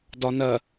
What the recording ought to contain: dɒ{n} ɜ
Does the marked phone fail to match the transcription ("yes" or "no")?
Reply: no